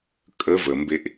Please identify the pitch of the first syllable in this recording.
rising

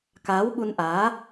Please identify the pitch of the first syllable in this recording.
rising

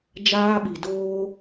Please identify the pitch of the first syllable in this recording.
high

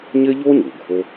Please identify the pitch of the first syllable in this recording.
high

